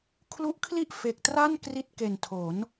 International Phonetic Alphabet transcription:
kʰ l u˦˥ ʔ kʰ l i˥˩ ʔ f e˨˩ k̚ t r a˥˩ n k r i˦˥ t̚ k e˨˩ n tʰ o˩˦ n

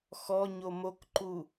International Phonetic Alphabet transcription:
x ɔ ɲ o m o k ǃ u

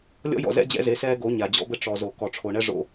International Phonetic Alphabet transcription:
lʲ ɔ̰˦ j ɔ̰˨ z ɛ̰˦ d͡ʑ ɛ̰˦ z e˨˦ s ɛː˦ ɡ o˨˦ ɲ a˨ d͡ʑ ɔ̰˦ b ɘ˦ ʈ͡ʂ ɔ˨ z o˨ k ɔ˨ ʈ͡ʂʰ o˨ ɳ ɛ˦ ʐ o̰˦

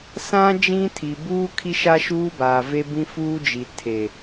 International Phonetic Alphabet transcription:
s ã˦ d͡ʒ ĩ˦ tʰ i˨ b uː˦ kʰ i˦ ʃ a˦ ʃ uː˦ b aː˨ v e˦ b ĩ˦ f uː˦ d͡ʒ i˨ tʰ e˨

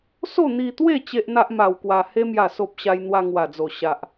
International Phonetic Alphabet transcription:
s o˥˧ n̪ i˧ t̪ w e˥˧ t͡ɕ e˦ ʔ n̪ a˦ ʔ m a˧ w k w a˧ h e˧ m j a˨˩ s o˨ p̚ ɕ a˧ j n̪ w a˧ ŋ w a˨˩ d͡z o˨˩ ɕ a˨ ʔ

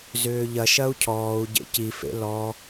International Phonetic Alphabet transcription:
z ʏː ʎ ɐ ʃ ɐ u̯ cʰ ɔː u̯ ɟ ḛ c i f ḛ l ɔ

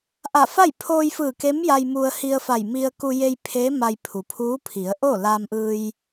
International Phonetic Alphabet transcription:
ʔ a˧˩ f a˥˨ j pʰ oː˧ j f ɯː˧˩ k e˧˥ m j a˧ j m u˧ ə̯ h i˧ ə̯ f a˧˩ j m i˧ ə̯ k u˧ j e˧ j pʰ e˧˥ m a˧ j pʰ u˩ pʰ uː˧˥ pʰ i˩˧ ə̯ ʔ o˥˨ l aː˧ m ʔ ɯː˧ j

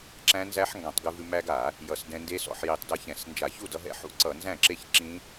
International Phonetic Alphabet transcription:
ǁ æ̃˦˥ n z æ˦˥ ħ ŋ ɡ ã˧˩˧ tˤ ɡ ʉ˧ v ʉ˧ m æ˧ ɡ a˧˩˧ | j ʌ˧˩˧ s d ɛ̃˧ n d e˦˥ s ɔ̰˧˩˧ ħ j i˧˩˧ tˤ d ʌ˧ ç ɛ̃˧˩˧ s n d͡ʒ a˧˩˧ ç u˥˩ d ʌ˧ ɦ ɛ̰˥˩ ħ ṵ˦˥ ǀ ʌ˧˩˧ n z æ̃˥˩ ǁ e˥˩ ç ǁ ĩ˦˥

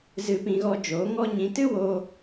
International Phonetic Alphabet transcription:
z ɨ˧ p ĩ˧ ɣ ɔ˧ d͡ʒ oː˨˦ ŋ ɔ˦ ɲ ĩ˧ t ɨ˦ w oː˧

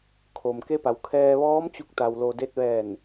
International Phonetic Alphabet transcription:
kʰ o˩ m k e˧˥ p a˩˧ w kʰ ɛː˧ ʋ ɔː˧˥ m t͡ɕ u˧ k̚ t̪ a˧ w l o˧ d e˧ t̚ ʋ ɛː˧˩ n

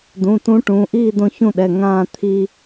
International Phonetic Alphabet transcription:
d ũ˩˧˩ t ũ˨˥ ʈ ũː˩˧˩ ʔ iː˥˨ d õ˦ ç ũ˥˨ ɗ ɛ˩˧˩ ŋ ãː˥˨ t̪ʰ i˦

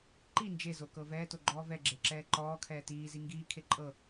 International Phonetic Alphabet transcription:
ǃ i n d͡ʒ e z o k ɤ v ɛː t o ɡ͡ǃ ɔː v ɛ ɡ͡ǁ e ǁ ɛː ǃ ɔː kʰ ɛː t iː z i ŋ ɡ iː kʰ e ǃʼ ɤ

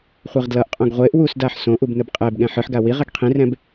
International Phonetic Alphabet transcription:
χʷ i ʁ d l ʌ ʔ qʼ õ ɡ ʁʷ e ʔ w u s d a ħ s õ ʔ u b n ɯ b qʼ ɛ b ɠ ɛ̃ ħ ɯ ħ ɡ a w i ʁ ɛ ɡ qʰ ĩ r ɛ̃ b

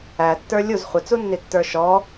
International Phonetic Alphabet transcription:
æ tː ə˞ lʲ u z χʷ ɪ t͡s u nː i tː ə˞ ʃ ɔ

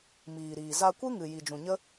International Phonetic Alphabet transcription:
m iː˨ ɾ iː˨ z a˧ kʷ ɨ˦ ŋ ɨ˨ j i˨ d͡ʒ ũ˨ ɲ ə˦

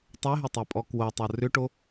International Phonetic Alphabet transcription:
tˤ e ɦ ʏ tˤ e pʼ ɔ k w o tˤ o r ʏ ʈ o

